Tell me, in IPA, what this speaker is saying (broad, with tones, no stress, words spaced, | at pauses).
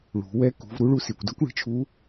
ɭṳ˩˧wɛ˧˥ kṳ˩˧v ɾu˧˥ɭu˧ si˩kʷdʌ˥kʷɭi̤˧t͡ʃʰu˧˥